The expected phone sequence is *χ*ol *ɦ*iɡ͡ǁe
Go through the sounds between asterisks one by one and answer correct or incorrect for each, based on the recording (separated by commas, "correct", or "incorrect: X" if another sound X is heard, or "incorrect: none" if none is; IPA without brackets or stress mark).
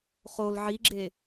correct, incorrect: ʕ